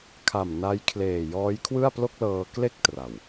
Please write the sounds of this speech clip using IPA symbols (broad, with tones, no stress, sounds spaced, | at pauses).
kʰ a˨˩ m n a˦˥ j kʰ l eː˨˩ j ɔː˦˥ j kʰ w ɯ˥˩ a̯ p l o˥˩ k̚ l ɤː˧ k l e˥˩ k̚ t r a˨˩ w